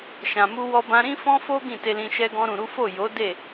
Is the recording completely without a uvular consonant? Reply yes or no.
yes